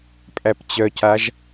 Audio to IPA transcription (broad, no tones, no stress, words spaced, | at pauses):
pʼæpt͡ɕœcaʒ